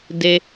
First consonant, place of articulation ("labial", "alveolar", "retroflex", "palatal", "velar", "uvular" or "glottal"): alveolar